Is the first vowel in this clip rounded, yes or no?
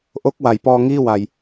yes